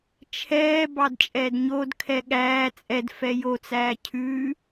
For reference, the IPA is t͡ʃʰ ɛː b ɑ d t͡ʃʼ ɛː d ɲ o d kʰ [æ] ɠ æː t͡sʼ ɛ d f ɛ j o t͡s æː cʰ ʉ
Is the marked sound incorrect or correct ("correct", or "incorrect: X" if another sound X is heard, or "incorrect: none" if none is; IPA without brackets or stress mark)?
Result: incorrect: ɛ